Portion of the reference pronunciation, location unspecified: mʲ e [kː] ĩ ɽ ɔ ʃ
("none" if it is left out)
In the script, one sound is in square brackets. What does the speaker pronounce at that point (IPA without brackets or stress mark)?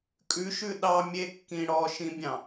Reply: kː